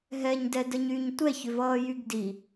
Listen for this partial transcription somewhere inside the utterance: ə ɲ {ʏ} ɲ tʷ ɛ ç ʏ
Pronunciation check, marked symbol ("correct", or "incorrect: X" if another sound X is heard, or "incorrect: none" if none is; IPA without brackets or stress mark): incorrect: y